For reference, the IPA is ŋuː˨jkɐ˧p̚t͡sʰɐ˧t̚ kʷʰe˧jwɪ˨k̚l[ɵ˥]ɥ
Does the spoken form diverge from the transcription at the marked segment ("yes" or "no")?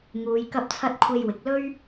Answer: no